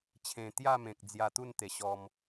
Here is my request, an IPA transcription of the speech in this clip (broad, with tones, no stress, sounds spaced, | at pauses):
t͡ɕʰ ẽ˨˩ t̪ j a˥˧ m ẽ˨ k̚ d͡z j a˧ t̪ u˥˧ n t̪ e˨˩ ɕ ɔ˧ m